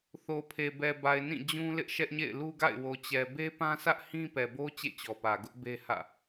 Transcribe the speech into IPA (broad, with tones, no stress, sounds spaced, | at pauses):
θ o˨ pʰ e˨ b ɛ˨ b a˨ ɪ̯ n ĩ˦˨ d͡ʑ ũ˦ l ɪ˦ ʔ ʃ ɛ˦ ʔ ɲ ḛ˦˨ ɪ̯ l u˦ ɡ a̰˦˨ ɪ̯ w o˨ t͡ɕ ɛ˨ b e˦ p ã˦ sʰ ä˦ ʔ h ĩ˦ p ɛ˨ b o˦ t͡ɕ ḛ˦˨ t͡ɕ ɔ˨ p ä˨ ɡ ʊ˦ ʔ b e˦ h ä̰˦˨